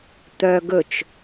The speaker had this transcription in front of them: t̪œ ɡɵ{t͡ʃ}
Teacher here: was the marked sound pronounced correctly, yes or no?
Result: yes